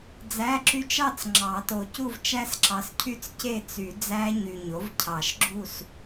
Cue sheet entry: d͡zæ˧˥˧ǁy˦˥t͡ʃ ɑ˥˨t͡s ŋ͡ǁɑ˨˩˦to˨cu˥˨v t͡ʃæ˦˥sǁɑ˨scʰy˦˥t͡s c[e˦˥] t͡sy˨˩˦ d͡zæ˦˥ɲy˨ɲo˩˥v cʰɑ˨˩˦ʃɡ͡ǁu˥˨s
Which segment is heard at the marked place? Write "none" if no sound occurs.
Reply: e˥˨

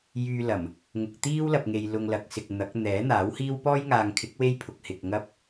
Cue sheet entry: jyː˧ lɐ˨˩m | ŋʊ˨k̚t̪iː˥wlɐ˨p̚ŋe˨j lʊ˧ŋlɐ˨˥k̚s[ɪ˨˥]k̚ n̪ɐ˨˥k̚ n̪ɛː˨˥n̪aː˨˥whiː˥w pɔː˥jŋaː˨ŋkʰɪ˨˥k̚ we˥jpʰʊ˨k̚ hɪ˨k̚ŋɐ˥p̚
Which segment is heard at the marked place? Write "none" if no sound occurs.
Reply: ɪ˨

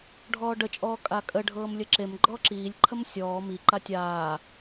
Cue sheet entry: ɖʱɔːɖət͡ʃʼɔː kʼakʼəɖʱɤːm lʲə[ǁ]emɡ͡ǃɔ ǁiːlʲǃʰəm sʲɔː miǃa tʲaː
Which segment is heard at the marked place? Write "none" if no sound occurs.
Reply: ǁ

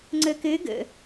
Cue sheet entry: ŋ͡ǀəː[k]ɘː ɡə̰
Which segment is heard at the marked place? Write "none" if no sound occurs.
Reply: k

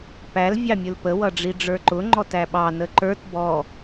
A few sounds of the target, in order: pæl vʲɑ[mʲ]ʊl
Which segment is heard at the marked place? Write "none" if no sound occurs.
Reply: mʲ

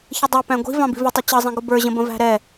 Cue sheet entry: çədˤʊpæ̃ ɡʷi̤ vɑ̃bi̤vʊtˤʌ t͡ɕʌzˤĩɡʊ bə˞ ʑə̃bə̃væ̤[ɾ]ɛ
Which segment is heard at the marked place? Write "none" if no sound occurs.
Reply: ɾ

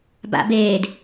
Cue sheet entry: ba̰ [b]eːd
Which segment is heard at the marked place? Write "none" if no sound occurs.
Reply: b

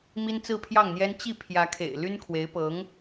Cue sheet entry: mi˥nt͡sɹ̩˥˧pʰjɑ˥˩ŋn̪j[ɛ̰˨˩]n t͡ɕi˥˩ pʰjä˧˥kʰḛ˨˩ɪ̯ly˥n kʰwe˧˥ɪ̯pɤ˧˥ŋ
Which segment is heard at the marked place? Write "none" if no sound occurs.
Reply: ɛ˥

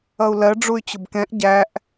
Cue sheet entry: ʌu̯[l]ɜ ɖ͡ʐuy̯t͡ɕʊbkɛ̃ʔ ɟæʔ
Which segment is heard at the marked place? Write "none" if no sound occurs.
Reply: l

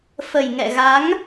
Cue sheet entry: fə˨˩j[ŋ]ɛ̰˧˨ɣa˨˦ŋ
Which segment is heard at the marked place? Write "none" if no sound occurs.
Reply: ŋ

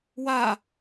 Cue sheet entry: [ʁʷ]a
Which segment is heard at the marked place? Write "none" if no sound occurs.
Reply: w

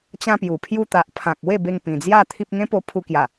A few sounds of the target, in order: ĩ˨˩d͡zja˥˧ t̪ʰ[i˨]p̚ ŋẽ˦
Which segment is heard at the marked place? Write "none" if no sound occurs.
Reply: i˦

